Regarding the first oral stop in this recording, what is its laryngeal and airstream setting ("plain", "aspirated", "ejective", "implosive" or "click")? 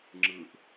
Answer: click